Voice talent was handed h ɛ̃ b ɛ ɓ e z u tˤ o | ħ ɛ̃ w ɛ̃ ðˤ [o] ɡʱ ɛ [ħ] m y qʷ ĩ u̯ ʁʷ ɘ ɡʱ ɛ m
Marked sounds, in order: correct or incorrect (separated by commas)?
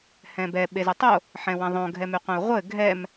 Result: incorrect, incorrect